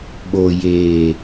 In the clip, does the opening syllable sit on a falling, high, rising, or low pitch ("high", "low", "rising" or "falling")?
low